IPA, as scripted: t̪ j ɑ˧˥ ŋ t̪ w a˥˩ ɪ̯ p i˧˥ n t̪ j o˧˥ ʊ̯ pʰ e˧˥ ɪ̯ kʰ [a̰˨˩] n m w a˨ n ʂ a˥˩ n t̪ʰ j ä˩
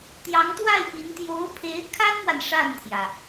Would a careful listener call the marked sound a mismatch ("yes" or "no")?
yes